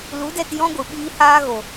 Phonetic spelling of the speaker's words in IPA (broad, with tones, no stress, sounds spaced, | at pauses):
l u˨˦ d ɛ˧ t j ɔ̃˦ ɡʷ ɨ˨ ɓ iː˦ h aː˦ ɣ o˨